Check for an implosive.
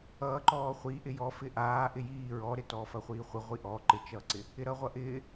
absent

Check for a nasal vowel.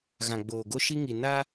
present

